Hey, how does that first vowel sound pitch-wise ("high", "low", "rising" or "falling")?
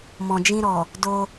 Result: low